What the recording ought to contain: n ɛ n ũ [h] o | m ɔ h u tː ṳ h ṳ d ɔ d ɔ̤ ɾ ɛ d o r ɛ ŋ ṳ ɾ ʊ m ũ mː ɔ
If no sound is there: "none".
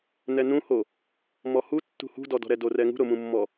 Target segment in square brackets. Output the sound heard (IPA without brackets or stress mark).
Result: h